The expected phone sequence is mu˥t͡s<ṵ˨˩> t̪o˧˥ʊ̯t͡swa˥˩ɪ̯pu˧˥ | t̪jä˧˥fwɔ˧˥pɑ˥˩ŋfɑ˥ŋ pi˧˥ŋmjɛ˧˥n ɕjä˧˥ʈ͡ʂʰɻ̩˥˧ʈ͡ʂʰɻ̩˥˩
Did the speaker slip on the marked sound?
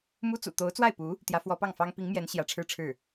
no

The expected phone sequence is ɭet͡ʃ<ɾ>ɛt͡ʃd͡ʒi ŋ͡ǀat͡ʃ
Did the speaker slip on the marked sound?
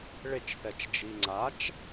yes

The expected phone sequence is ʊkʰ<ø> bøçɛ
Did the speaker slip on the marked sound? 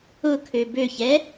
no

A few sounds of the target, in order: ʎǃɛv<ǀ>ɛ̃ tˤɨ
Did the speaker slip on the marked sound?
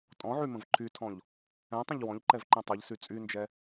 yes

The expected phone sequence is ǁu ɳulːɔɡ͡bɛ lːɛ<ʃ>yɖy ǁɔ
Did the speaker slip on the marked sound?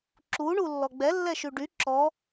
no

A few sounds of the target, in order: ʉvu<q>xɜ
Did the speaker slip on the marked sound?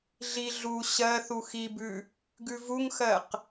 yes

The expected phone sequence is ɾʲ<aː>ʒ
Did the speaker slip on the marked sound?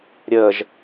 yes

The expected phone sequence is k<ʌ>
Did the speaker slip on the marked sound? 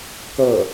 no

